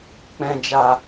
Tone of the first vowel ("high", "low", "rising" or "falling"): low